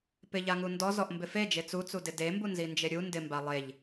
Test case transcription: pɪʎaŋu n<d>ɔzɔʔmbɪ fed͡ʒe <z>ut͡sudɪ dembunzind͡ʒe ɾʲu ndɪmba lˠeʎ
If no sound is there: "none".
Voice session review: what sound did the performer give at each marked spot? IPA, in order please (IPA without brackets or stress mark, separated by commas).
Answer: d, t͡s